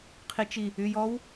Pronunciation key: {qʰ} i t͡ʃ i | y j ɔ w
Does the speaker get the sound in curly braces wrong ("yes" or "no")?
no